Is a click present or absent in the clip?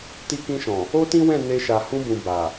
absent